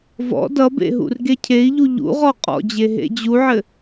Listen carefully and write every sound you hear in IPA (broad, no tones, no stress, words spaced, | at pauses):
vɔ̰ dʌbḛ ɦṵrɡecʰei̯ʎu ʎṵʁɔ qʼɔ̰d͡ʑe ɦḛd͡ʑuʕɘ